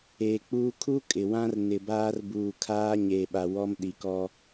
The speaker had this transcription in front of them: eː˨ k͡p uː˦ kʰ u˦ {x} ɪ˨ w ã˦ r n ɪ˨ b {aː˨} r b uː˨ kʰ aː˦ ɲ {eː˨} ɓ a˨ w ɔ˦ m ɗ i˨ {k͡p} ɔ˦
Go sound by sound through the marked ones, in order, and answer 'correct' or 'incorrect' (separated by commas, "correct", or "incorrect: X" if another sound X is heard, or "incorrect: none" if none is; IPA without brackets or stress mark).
incorrect: kʼ, incorrect: aː˦, correct, incorrect: k